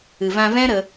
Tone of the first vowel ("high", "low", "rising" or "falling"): low